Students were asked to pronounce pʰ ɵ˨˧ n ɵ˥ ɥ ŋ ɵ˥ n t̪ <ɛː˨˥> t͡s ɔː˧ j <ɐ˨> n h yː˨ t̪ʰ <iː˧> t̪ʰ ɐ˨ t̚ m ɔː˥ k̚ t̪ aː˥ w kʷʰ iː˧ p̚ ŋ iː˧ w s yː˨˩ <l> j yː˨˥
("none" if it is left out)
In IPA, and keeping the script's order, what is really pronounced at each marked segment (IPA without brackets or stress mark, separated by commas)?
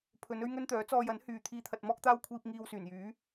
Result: œː˨˥, ɐ˨˥, iː˧, n